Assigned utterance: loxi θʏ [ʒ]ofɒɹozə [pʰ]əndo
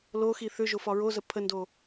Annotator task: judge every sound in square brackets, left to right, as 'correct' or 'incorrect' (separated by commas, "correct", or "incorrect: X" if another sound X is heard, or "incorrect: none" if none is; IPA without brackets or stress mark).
correct, correct